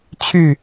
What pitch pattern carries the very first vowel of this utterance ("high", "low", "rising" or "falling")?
falling